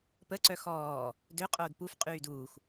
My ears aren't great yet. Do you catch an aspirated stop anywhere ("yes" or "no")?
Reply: no